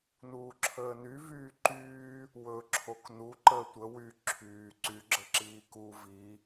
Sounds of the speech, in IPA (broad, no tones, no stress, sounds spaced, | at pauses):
n uː ǁʰ əː n y v yː ǃ yː | w ɵ ǁʰ o k n u ǃ əː tʷ ə w y ǁʰ yː ǀ y ɡ͡ǁ ə ǁ iː k u v i